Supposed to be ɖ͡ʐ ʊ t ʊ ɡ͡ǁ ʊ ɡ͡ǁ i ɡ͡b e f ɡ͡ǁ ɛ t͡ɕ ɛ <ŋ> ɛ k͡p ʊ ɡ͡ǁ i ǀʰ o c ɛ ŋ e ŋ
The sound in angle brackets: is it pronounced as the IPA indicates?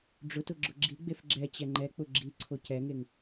no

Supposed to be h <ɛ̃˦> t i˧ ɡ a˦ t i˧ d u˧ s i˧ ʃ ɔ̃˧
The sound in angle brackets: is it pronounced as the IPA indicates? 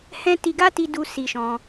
yes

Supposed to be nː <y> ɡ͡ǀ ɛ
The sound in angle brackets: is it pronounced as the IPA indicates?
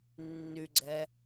yes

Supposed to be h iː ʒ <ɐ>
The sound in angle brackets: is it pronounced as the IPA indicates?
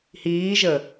no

